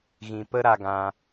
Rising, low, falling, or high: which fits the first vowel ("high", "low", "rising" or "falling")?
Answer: low